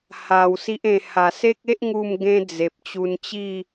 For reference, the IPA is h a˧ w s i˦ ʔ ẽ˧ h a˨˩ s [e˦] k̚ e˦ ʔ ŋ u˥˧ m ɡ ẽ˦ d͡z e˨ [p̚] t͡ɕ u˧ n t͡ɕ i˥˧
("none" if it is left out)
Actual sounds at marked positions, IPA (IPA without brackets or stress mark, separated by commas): e˦, p̚